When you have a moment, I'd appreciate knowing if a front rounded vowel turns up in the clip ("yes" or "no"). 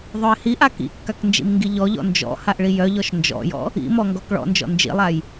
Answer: yes